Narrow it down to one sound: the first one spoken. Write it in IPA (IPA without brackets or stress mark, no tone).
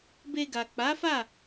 b